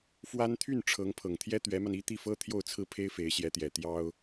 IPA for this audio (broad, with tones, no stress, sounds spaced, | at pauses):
f w a˥ n t̪ʰ y˥˩ n ʈ͡ʂʰ ɤ˧˥ ŋ pʰ ɤ˨˩ ŋ t̪ʰ j ɛ˥ t̪ ɥ ɛ˧˥ m a˧ n i˥ t̪ i˥˩ f ɤ˥ t̪ʰ j o˥˧ ʊ̯ t͡sʰ ɹ̩˥˩ pʰ e˥ ɪ̯ f e˧˥ ɪ̯ ɕ j ɛ˧˥ t̪ j ɛ˨˩ t̪ j ɑ˥ ʊ̯